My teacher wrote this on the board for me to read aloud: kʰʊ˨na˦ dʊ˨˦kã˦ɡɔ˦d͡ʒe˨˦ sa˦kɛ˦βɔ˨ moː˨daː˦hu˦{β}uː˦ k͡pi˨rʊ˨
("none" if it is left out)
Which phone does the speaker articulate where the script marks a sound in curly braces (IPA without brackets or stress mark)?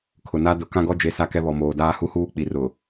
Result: h